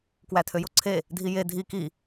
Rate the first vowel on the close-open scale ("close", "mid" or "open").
open